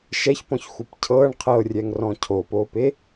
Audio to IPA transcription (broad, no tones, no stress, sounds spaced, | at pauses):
ʃ ɛ ç p ɔ̃ ç xʷ ɯ p cʰ ɤ ɳ qʰ ɤ rʲ ɛ ŋ r ɔ̃ cʰ o p o p e